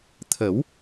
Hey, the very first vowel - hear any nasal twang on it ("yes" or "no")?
no